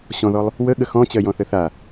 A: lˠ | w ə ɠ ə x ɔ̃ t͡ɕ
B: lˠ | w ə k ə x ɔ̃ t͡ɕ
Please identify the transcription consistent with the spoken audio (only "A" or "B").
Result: A